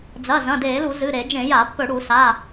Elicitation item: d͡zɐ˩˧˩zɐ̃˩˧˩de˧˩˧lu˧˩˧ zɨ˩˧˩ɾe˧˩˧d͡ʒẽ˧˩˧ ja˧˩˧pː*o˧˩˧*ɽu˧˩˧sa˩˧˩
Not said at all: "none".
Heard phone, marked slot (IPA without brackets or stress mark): ɵ˧˩˧